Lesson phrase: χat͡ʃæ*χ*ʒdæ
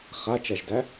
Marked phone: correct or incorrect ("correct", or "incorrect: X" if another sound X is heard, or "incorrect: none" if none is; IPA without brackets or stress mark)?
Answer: incorrect: none